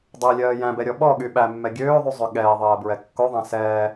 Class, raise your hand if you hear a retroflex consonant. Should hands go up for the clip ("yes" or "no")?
no